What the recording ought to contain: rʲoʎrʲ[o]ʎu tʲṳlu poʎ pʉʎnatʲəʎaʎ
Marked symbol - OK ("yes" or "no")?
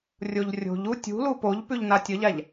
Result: no